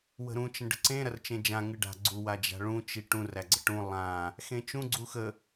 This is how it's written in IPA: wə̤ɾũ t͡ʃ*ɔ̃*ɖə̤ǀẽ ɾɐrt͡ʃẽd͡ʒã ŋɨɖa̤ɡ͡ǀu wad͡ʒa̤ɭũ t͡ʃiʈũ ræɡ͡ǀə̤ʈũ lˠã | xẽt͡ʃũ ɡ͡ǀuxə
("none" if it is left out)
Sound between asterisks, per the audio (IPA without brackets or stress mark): ə̃